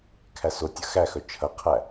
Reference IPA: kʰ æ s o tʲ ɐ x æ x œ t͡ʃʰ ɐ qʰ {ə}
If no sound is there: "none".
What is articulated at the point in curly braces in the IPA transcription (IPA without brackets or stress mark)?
æ